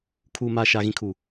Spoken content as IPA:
kʰ uː˨ m aː˨ ʃ aː˨ ɣ ĩ˨ kʰ uː˨

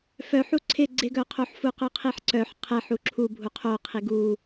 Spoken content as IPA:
f œ ħ u ǀʰ ɪ ɡ͡ǀ ɪ ɡ œ qʰ o ħ f u q œ qʰ i ħ ǀ œ ħ qʰ ɛ ħ u ǁʰ u bʱ u qʰ o qʰ i ɡ u

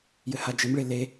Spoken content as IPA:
j ɘ h a d͡ʒ ɘ m ɭ e l e

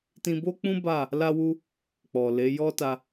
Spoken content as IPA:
t ĩ˧ b o˦ k͡p ũ˦ b a˦˨ | l a˦ w u˦ | k͡p ɔ˨ l e˨˦ j ɔ˦ t a˧

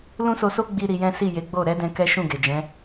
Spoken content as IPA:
l ũ˦ s o˧ s o˦ ɡ͡b i˦ ɾ i˧ j ɛ̃˦ s i˦˨ j e˨˦ ɡ͡b o˦˨ ɾ ɛ˧ d ɛ̃˧ k ɛ˦ ʃ ũ˦˨ ɡ e˨ d͡ʒ ɛ̃˨˦

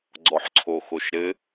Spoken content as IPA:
ɡ͡ǀ ɔ ħ ǀʰ o x o ʃ ɾ ɘ

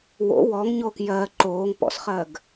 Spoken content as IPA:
w o̰ w ɔ ŋ ɲ o k j ɜ ǃ oː ŋ p ɔ̰ s χ ɜ ɡ

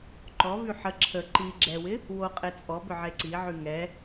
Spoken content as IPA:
ǃ ɔ v y ħ ə ǁʰ ə ǃ i ɡ͡ǁ ɛ w ɪ | w o qʼ e t͡sʼ ɔ b ʏ ʕ e ǀ i ʕ y ŋ ɛ

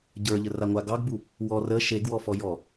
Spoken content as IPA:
ɟ ə˞ ʎ ə r a ŋʷ a ɡ ɑ ɡ b u | w ɔ r ə ʃ e ɡ w ɔ f ɔ j ɔ

